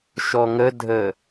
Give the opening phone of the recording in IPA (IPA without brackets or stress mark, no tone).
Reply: ʃ